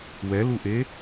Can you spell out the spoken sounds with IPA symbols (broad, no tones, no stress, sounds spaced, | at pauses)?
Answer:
w ɛ l u ʔ e